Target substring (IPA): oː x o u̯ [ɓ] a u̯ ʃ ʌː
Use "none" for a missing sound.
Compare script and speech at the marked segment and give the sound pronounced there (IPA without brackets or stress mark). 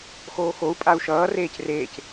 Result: pʼ